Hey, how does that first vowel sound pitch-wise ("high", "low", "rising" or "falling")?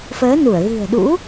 rising